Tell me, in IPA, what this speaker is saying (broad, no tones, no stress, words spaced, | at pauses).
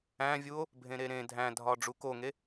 æ̃vʲuo̯ | bʱẽɾeɾẽ dʱæ̃dʱɒ ɖ͡ʐukoŋe